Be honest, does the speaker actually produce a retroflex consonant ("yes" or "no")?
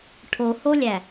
yes